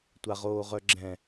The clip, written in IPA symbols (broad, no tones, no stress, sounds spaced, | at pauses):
tʷ a ʁ oː ʁ œ ɡ͡ǁ ɛ̃